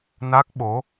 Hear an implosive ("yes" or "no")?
yes